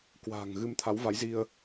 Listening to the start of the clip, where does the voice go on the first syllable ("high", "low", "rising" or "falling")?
low